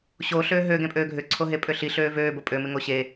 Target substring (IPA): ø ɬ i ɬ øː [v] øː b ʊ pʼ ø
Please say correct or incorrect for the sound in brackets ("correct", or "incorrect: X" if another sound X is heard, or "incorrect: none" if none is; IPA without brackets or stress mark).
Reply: correct